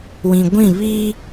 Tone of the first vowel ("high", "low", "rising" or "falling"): low